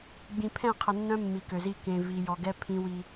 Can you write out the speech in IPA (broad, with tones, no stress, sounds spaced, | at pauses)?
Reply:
ɡ͡b ĩ˨ pʰ ɛ̃˦˨ qʰ ə˨ nː œ̃˦ mː i˨ k ø˨ z i˦ k ẽ˨ v i˨ j ɔ˨ ɡ ɛ˦ pʰ ĩ˦ w i˦